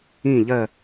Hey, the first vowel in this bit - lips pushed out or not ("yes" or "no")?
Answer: no